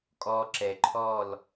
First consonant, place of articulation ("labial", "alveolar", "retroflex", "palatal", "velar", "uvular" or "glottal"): velar